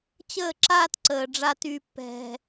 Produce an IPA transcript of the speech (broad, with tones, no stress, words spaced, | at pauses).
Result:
t͡ɕəː˦˨ǁaː˦tǀəː˨ ɖ͡ʐa˦ty˦pːɛ̤˦